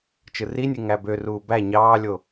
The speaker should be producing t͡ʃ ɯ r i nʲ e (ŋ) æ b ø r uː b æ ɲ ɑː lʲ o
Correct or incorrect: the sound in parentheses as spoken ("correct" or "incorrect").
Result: correct